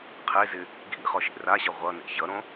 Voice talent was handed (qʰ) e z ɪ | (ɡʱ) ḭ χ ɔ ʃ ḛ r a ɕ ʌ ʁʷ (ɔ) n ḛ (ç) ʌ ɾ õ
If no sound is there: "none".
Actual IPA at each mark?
qʰ, ɡʱ, ʌ, ç

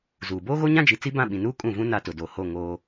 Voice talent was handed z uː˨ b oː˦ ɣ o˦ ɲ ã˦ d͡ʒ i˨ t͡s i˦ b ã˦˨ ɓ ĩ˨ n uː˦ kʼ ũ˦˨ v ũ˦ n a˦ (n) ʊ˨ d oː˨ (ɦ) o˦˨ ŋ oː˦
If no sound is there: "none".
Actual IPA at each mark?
t, h

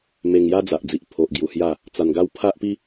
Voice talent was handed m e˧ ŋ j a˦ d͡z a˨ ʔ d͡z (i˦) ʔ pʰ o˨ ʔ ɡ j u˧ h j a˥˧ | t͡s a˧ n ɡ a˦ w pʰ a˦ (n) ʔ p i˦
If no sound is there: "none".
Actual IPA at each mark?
i˨, none

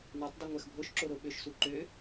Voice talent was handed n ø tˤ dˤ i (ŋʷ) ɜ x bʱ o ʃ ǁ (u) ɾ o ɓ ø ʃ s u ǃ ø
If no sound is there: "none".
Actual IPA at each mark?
ŋʷ, o

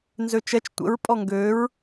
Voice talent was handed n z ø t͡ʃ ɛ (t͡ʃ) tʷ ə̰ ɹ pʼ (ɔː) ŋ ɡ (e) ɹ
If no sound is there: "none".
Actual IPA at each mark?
t͡ʃ, ɔ, ø

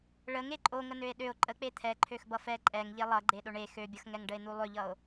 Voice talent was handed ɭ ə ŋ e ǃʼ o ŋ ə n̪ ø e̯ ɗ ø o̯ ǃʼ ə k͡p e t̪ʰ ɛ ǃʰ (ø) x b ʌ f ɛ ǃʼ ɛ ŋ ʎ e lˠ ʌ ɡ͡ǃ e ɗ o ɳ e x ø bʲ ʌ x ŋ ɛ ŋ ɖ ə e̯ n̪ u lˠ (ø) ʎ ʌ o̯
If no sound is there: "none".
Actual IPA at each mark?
ø, ø

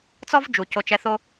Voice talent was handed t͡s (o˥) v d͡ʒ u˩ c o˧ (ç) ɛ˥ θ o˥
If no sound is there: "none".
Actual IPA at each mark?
ɔ˥, t͡ʃ

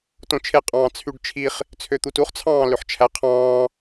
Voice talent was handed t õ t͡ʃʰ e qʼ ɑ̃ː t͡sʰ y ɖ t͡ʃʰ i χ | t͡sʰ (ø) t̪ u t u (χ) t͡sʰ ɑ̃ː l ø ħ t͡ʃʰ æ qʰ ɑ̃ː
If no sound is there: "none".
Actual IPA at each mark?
ø, χ

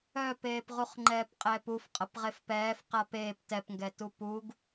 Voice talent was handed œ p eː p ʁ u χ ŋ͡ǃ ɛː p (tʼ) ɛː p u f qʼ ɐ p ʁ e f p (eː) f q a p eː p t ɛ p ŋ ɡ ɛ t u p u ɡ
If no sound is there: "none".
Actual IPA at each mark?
qʼ, ɛː

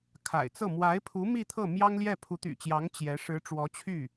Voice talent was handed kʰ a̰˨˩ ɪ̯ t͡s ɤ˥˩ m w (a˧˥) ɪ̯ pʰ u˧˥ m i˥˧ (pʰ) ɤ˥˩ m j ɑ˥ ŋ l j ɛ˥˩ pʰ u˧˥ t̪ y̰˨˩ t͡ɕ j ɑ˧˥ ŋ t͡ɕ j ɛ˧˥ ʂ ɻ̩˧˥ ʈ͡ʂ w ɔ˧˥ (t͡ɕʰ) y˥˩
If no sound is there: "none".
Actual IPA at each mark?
a˧˥, t̪ʰ, t͡ɕʰ

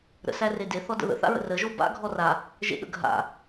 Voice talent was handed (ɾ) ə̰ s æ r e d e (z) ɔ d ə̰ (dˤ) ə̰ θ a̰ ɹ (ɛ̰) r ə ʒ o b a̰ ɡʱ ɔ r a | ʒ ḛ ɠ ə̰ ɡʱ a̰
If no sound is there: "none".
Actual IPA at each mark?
ɾ, θ, ð, ə̰

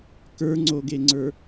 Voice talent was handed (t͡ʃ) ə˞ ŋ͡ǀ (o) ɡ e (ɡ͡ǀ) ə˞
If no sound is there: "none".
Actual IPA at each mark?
k, o, ŋ͡ǀ

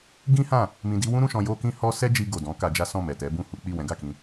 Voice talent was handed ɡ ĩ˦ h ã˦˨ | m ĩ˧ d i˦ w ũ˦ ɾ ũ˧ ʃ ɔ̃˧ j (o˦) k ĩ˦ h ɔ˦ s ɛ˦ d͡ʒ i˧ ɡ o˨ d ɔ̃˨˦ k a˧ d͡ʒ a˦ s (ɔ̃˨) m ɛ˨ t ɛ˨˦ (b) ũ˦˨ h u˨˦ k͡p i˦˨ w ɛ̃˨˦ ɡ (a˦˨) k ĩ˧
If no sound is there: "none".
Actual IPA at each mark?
o˦, ɔ̃˦˨, b, a˦˨

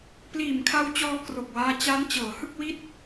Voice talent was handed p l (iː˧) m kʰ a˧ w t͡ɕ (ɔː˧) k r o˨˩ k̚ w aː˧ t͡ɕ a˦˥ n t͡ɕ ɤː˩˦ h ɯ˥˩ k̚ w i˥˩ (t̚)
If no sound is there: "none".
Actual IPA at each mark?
iː˨˩, ɔː˧, t̚

